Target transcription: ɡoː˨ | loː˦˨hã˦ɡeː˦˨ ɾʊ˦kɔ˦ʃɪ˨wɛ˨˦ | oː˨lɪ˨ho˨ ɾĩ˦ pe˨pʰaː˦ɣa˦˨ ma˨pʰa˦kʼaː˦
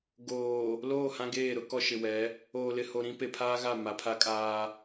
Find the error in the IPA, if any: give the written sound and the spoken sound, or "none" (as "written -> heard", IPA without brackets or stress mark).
none